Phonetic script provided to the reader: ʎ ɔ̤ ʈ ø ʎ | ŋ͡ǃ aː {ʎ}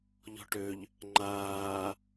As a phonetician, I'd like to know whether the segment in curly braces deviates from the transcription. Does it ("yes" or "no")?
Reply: yes